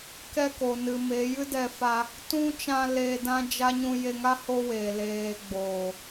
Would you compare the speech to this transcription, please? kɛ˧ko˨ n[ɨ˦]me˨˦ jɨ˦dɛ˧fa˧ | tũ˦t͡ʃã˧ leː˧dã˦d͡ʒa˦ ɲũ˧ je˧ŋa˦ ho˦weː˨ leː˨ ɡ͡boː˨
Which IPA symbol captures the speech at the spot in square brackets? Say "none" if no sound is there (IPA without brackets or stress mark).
ɨ˨